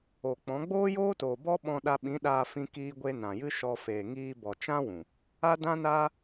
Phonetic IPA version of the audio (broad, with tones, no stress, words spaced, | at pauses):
o˨k͡pɔ̃˨˦ ɡ͡boː˦joː˦toː˨bɔ˦ ɓɔ̃˧ɗa˧ɓĩ˨˦ɗaː˧ fĩ˦kiː˦ɡʷe˦ nã˨jɨ˦ ʃɔ˧ feː˨ŋiː˧bɔ˨ t͡ʃã˦wũ˨ | a˦dã˦naː˦